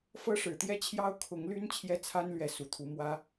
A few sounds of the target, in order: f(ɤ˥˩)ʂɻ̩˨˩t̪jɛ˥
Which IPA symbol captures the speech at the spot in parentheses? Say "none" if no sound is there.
ɤ˥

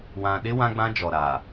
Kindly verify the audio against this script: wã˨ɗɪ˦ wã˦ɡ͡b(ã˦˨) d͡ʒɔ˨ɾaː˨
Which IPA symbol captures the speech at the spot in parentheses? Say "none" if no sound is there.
ã˦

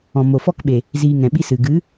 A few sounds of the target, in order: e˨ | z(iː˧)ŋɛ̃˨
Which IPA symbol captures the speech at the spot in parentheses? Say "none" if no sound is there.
iː˧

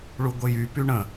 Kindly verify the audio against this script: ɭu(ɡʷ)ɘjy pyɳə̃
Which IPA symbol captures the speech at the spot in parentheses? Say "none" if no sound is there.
ɡʷ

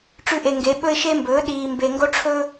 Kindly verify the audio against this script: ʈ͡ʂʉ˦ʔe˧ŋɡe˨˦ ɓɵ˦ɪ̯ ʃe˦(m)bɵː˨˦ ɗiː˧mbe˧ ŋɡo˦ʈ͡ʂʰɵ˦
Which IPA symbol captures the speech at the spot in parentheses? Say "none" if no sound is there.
m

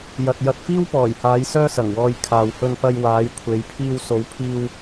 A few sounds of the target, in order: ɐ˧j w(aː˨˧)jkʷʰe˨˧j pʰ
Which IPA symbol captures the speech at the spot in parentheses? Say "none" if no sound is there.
aː˨˧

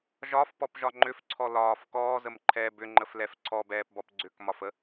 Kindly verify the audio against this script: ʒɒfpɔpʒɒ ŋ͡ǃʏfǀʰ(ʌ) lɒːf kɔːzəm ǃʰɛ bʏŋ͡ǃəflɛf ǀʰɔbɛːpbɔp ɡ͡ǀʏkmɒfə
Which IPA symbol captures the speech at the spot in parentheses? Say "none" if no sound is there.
ɔ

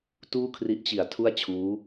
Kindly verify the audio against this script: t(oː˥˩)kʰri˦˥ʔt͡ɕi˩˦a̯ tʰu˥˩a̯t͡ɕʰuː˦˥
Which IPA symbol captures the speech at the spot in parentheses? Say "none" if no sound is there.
uː˥˩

